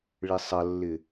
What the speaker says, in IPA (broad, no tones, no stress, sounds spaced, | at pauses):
ɭ ɪ sˤ ɐ lː ɪ